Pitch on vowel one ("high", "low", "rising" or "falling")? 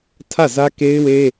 falling